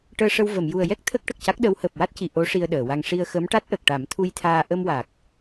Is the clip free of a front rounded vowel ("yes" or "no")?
yes